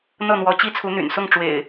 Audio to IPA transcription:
n̪ɤ˥˨n̪wɔ˨˦ t͡ɕi˦t͡sʰu˨˦n̪y̰˨˩nsʊ˥˨ŋ ʈ͡ʂwḛ˨˩ɪ̯

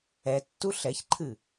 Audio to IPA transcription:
ɛtːu ɬɛçǃʰɨ

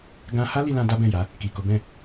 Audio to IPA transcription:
ɡã˧ha˦ li˧lã˧ da˦bɛ̃˦˨ja˨˦ | ki˨ ko˨˦bɛ̃˦˨

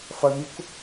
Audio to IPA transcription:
fɐmʲuk

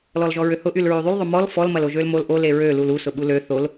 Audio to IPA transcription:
lɔlʒɔɹøhʊ ʔylɹyðˤyl ðˤʊmɔl fɔl mɐloʒølmol ʔo leɹø lulu sʊɓulø θol

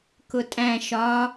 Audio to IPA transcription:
kʊtʼæ̃ ʃɒ

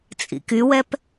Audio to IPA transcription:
t͡sʼḭkywɛp

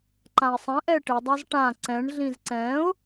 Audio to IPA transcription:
ǃãɪ̯sˤɛ̃ ʔɛʈɪ dˤazʈã ǀɛ̃ɳ ɮĩzǀɛ̃ʊ̯

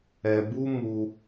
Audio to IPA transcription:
ɛ˧bu˦ mu˧

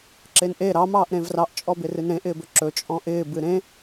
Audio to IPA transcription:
ǁenʔe ɾɑ mɑːʔɾẽvrɑʔ t͡ʃʼɔbɪrɨnɾẽ ʔɪːbɵǁɵ t͡ʃʼɔ̃ʔɪː bɨɾẽ

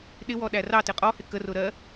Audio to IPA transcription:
ɗɪwɔ ɗærɑtɪ qʼɔhɪ kərʊ ɾɜ

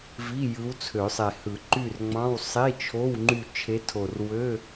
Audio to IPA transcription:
vi˧˥˧ jɯ˧˥wt͡sʰø˨˩˦sˤe˨˩hɯ˨˩˦ ǃy˦˨rŋ͡mɑ̃˧˥˧w sˤi˧˥˧t͡ʃʰo˧˥˧w ŋ͡ǃy˦˨t͡ʃʰe˧˥tʰo˨˩r wø˧˥˧

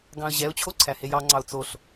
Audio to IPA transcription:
ɡɑ̃ə̯ʑɛʊ̯t͡ɕʰo ǀʰæhejɑŋ͡ǀɑʊ̯ t͡soɬ

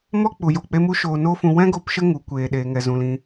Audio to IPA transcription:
mɔ˦k͡pu˨jo˨k͡pe˧ mu˦ʃoː˧no˦fũ˧ wɛ̃˦ɡo˧p ʃə˦ŋu˨ kʷeː˨ɗeː˨ŋɛ˨zũ˨l ĩ˧

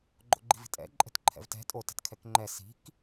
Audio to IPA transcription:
ɡ͡ǃo̰ɡ͡ǃi̤vi̤tʼɛ̰ ǃʼɛ̤tǃʰɛ̰vtɛ̤ tʼo tɛ̤tkʰɛkŋ͡ǃɛ si̤k

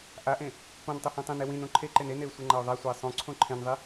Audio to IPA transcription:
ʔaʔẽ | põn tˤʉhẽtˤẽne wĩn õǃʰeǃen eneʊ̯ sʷeŋ͡ǃaʊ̯ðˤasʷaɪ̯ sˤõǀʰõ ǃʰẽnðˤi

